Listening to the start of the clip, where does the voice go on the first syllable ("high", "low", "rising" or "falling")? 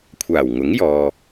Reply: low